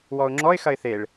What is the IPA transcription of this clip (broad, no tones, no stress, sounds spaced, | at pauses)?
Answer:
w ɔ ʊ̯ ŋ͡ǁ ɔ ɪ̯ x ɐ ɪ̯ θ e ɭ